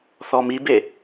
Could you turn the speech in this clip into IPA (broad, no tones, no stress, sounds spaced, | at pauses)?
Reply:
θ ɔ m i b e